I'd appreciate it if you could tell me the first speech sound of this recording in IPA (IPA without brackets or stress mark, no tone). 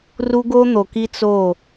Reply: r